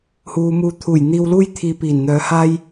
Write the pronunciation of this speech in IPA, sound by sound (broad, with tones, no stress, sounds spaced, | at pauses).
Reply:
h uː˨˧ m uː˧ t̪ʰ uː˨˩ j n̪ iː˧ w l uː˥ j t̪ʰ iː˧ p iː˨˩ n n̪ œː˨˧ h aː˥ j